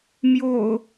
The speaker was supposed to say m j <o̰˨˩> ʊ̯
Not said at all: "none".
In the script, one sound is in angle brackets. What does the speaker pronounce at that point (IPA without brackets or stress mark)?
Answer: o̰˨˩